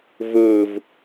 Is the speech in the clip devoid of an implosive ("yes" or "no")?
yes